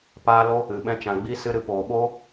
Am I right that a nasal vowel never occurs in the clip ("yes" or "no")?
no